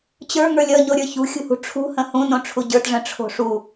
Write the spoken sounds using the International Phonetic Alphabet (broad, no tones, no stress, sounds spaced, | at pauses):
t͡ɕ ə˞ ŋ ə˞ lʲ ʌ ɲ o ɾʲ ə˞ ç ṳ xʲ ṳ h ṳ ʈ͡ʂʰ ṳ h ə̃ h ũ n õ ʈ͡ʂʰ u ɟ ə˞ t ʐ ə̃ ʈ͡ʂʰ o̤ ʂ u